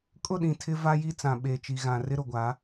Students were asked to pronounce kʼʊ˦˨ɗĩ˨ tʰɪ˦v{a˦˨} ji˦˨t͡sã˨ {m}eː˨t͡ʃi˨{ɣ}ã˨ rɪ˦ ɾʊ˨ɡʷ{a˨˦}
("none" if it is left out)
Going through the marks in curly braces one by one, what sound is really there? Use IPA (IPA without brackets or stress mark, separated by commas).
a˦, ɓ, ɣ, a˨˦